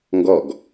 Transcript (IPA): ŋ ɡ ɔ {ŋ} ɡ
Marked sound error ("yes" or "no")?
yes